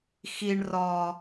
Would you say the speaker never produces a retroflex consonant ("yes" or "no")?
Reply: no